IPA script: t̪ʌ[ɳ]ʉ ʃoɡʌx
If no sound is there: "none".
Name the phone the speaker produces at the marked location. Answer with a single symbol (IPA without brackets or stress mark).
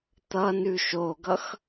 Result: n